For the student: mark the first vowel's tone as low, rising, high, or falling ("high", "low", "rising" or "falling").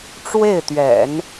falling